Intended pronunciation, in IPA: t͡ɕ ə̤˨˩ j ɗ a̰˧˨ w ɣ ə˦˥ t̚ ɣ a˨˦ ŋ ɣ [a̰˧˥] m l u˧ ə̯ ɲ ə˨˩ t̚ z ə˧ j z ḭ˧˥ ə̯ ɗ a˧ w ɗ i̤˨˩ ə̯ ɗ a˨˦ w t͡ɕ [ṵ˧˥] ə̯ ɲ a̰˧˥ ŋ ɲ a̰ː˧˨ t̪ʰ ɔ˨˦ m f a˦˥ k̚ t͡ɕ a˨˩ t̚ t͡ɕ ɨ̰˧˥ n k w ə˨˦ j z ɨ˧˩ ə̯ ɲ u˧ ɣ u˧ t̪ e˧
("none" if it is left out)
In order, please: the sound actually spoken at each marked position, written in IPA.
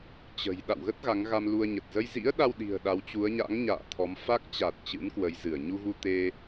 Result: a˧, u˨˦

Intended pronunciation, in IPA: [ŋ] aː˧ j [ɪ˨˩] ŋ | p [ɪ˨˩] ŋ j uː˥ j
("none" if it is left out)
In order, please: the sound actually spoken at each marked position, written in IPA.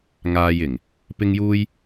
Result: ŋ, ɪ˨˩, ɪ˥

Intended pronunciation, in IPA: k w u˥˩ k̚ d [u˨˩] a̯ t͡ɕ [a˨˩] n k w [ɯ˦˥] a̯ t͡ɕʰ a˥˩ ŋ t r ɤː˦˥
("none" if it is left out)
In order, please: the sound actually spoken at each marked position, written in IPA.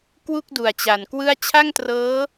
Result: u˨˩, a˨˩, ɯ˥˩

